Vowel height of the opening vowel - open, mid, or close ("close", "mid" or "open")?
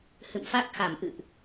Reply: close